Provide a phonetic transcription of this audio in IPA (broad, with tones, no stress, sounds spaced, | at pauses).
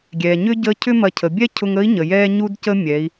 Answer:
ɡʲ ɛ˩ ɲ ʏ˥ ɟ ə˧˥ cʰ ʏ˥ m ɐ˧ cʰ ə˩˧ bʲ ɛ˥ cʰ ʊ˧ ŋ ə˧˥ i̯ ɲ ə˩ j ɛ˧ ɲ u˥ d c ə˥ mʲ ɛ˩˧ i̯